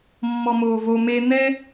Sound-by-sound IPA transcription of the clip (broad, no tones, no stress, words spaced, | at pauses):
mːɔmoːvo me n̪ɛ